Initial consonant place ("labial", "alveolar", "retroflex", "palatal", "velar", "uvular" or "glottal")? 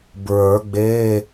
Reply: labial